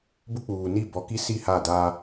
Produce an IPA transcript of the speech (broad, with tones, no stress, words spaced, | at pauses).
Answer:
bʊ˦k͡puː˨ ni˦˨bɔ˨ki˦ si˦˨ha˦˨daː˦